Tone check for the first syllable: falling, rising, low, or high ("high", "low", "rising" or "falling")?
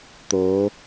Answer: rising